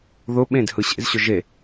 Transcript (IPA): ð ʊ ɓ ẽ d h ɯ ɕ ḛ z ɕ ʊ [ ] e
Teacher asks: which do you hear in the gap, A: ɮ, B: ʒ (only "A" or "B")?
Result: B